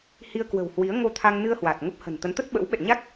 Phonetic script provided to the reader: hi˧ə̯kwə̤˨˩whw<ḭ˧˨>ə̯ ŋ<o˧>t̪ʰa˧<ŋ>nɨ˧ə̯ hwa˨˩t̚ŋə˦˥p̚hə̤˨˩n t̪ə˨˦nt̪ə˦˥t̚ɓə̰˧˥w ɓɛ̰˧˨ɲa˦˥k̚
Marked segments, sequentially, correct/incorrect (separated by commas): incorrect, correct, correct